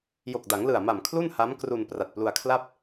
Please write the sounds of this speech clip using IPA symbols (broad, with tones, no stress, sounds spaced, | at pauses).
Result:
j o˨˩ k̚ d a˩˦ ŋ l ɯ˨˩ a̯ m a˨˩ m kʰ l u˥˩ n h a˦˥ m k r u˧ n p r a˨˩ t̚ p l u˧ a̯ kʰ l a˥˩ p̚